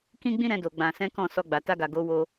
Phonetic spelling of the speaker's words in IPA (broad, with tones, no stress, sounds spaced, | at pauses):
k ĩ˦ ɡ͡b ĩ˦ ɾ ɛ̃˧ d o˨ ɡ͡b ã˨ s ɛ̃˨˦ k ɔ̃˦˨ s ɔ˧ ɡ͡b a˨ t a˧ ɡ a˨ ɡ o˨˦ w o˧